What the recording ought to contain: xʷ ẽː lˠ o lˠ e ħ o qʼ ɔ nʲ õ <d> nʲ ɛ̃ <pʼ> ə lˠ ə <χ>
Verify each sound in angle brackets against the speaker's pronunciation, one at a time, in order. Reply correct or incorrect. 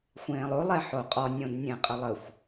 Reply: correct, incorrect, incorrect

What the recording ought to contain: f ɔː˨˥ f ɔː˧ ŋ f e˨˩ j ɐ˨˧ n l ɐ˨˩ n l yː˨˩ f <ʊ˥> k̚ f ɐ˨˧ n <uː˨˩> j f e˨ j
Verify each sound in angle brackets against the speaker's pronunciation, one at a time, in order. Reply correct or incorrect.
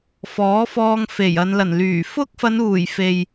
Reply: correct, correct

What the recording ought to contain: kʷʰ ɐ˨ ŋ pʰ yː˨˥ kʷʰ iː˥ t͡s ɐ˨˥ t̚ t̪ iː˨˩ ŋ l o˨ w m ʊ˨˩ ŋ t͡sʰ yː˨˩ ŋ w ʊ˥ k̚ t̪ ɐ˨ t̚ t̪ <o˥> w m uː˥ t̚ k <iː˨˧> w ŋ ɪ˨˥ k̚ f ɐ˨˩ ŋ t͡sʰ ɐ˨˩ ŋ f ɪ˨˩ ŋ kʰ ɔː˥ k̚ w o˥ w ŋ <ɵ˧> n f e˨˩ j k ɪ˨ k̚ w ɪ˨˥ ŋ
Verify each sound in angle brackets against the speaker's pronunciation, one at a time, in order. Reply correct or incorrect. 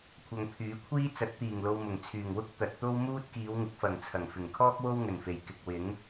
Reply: correct, correct, incorrect

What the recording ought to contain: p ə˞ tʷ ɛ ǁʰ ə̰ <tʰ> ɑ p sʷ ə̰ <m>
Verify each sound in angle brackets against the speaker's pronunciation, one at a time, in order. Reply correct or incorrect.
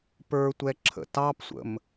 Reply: incorrect, correct

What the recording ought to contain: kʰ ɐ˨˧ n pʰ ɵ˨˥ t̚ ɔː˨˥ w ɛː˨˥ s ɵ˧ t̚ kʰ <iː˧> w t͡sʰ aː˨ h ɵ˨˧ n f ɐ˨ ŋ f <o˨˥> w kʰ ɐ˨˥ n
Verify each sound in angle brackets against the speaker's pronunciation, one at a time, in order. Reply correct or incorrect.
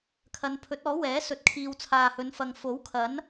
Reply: correct, correct

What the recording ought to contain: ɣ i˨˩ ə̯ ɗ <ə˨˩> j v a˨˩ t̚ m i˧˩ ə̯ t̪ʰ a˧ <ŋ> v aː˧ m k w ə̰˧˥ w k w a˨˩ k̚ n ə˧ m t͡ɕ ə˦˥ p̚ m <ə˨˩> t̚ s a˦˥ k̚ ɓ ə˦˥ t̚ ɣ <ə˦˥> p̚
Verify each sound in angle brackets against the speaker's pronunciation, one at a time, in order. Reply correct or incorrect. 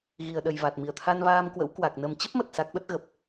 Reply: correct, incorrect, correct, incorrect

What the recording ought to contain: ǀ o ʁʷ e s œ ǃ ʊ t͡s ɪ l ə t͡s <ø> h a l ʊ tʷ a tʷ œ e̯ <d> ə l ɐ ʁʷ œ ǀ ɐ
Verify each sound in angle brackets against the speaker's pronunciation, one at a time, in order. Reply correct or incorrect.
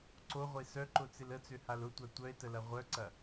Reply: correct, incorrect

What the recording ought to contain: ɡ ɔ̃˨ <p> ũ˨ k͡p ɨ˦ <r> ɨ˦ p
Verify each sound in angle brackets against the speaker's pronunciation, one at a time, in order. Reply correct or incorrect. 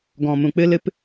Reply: incorrect, incorrect

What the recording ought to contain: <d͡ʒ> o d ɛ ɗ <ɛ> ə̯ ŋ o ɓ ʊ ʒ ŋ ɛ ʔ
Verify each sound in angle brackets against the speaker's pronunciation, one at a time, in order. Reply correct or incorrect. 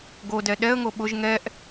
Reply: incorrect, correct

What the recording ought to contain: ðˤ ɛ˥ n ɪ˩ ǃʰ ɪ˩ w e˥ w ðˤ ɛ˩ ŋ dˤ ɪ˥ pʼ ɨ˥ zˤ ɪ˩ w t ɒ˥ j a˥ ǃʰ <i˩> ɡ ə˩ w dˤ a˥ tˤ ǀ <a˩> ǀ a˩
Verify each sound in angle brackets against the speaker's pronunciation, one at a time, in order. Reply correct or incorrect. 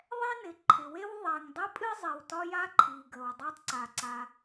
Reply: correct, correct

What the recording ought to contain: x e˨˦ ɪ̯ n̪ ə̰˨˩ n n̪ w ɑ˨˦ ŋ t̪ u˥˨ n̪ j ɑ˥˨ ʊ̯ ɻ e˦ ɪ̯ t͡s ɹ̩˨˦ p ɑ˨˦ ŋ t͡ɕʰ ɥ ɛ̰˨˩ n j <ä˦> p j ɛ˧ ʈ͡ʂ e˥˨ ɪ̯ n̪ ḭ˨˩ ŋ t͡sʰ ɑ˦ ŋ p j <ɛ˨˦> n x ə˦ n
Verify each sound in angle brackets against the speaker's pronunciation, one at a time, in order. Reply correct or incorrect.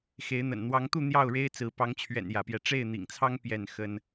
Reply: incorrect, incorrect

